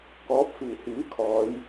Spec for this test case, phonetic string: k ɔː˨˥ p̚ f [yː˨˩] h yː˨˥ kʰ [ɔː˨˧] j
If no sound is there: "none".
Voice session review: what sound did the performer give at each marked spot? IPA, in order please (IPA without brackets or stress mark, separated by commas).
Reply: iː˨˩, ɔː˨˧